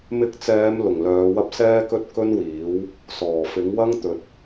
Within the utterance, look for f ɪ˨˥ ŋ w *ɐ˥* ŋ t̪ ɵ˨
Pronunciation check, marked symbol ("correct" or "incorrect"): correct